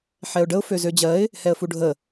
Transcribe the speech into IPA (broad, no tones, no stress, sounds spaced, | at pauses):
ħ ɛ ʊ̯ ɖ ə ʊ̯ f ø z ø d͡ʑ ɜ ɪ̯ | h ɛ ə̯ f u ɖʱ ə